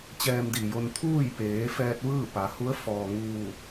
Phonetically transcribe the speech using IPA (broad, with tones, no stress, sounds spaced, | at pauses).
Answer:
t͡ɕ ɛː˧ m d iː˩ j o˧ n t̪ʰ uː˥˨ j p eː˩˧ f ɛː˧ t̚ ʋ ɯː˥˨ p a˩˧ h u˧˥ ə̯ f ɔː˩ ŋ uː˧˩